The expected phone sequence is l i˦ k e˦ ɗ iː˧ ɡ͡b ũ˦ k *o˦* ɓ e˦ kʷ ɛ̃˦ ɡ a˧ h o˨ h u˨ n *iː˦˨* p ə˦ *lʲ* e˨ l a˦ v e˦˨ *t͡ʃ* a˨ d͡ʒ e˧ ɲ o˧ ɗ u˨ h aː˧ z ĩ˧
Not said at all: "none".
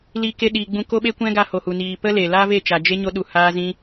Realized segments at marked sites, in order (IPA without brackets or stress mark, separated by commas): o˦, iː˨, l, t͡ʃ